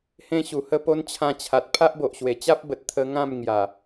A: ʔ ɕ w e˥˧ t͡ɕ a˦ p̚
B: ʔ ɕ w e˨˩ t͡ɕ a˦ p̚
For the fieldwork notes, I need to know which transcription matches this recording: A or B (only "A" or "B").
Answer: B